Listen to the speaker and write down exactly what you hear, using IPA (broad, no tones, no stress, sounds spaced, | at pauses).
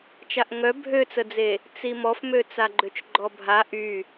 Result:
t͡ʃ a ʔ ŋ œ bʱ ø t͡s ə d͡z e | t͡s i m ɔ f m ø t͡s a ɡ͡ǃ ø t͡ʃ ɡ͡ǃ ɔ bʱ a ʔ y